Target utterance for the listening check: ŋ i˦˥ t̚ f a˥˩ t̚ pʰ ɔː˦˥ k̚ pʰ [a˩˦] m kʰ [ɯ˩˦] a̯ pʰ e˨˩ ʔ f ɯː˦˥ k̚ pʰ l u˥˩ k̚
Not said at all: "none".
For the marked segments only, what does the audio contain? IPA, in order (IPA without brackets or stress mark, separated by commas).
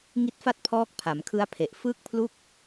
a˩˦, ɯ˦˥